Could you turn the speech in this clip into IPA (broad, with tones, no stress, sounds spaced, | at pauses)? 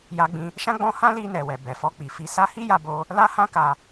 j a˧ ɡ͡b ĩ˧ | ʃ ã˦ ɡ͡b ɔ̃˧ h ã˦ l i˧ n ɛ˨ w ɛ˨ b ɛ˨ f ɔ˧ k͡p i˨ f i˧ s a˧ h i˦ j a˧ b o˧ | l a˦ h ã˦ k a˧